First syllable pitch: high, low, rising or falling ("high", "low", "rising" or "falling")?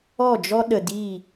falling